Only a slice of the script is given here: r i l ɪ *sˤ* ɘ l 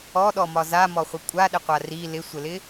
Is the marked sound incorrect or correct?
incorrect